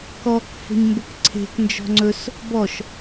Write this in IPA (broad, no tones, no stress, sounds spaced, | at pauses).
k ɔ k f ə̤ ɲ m b ə k ǀʰ e̤ k n d͡ʒ ɔ̤ ŋ͡ǀ ɵ s | b ɔ ʃ